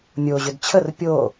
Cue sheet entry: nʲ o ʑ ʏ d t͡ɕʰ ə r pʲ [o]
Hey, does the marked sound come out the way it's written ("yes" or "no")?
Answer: yes